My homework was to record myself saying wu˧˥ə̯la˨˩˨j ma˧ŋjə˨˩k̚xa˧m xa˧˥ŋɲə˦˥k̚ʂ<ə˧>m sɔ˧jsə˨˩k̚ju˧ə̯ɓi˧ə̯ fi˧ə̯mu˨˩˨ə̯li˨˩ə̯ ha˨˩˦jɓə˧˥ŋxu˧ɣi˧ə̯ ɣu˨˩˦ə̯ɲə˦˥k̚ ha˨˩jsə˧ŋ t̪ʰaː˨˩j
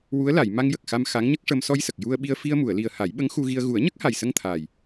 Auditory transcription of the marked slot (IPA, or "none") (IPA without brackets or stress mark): ə˧